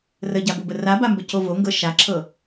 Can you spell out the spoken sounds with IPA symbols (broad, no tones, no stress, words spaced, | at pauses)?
rəɟabobə rabambəco voŋɡɤ ʃaǁʰɤ